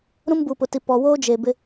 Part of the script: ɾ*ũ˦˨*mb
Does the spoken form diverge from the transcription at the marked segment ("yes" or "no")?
yes